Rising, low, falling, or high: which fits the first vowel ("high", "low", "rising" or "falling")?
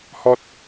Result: high